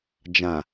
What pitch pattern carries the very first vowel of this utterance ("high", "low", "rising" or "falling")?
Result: low